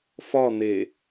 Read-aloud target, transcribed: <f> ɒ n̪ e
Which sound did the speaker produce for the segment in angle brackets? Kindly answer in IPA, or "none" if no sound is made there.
f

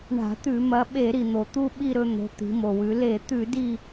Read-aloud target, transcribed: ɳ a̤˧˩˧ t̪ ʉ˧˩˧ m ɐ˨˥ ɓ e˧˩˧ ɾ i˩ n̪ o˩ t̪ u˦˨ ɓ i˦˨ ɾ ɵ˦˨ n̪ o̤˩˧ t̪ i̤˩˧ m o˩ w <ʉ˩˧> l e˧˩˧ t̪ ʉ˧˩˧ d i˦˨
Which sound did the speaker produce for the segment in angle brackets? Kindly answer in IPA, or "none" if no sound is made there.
ʉ˩˧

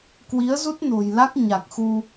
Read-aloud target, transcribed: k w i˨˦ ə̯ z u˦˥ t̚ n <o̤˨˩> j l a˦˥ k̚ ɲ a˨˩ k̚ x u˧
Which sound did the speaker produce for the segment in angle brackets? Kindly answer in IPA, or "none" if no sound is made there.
o̤˨˩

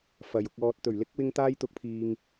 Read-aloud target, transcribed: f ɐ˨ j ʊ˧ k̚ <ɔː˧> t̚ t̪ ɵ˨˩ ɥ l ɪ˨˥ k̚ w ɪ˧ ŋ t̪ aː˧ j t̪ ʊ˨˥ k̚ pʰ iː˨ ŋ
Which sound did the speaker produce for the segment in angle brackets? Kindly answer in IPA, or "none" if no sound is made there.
ɔː˧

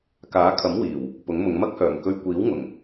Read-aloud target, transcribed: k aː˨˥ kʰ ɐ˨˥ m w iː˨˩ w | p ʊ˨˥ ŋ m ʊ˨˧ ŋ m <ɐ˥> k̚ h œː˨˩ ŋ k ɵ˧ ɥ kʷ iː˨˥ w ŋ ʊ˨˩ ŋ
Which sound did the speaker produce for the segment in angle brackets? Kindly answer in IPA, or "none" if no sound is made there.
ɐ˥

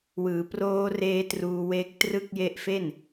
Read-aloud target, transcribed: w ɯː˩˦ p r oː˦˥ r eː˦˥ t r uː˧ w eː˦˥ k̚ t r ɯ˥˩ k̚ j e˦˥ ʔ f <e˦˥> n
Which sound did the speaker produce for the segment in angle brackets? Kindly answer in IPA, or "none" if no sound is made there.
e˥˩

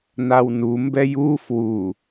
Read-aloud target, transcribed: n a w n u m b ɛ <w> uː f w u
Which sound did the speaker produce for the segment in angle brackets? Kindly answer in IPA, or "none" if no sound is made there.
j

